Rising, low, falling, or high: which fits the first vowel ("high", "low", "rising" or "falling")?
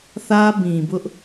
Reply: high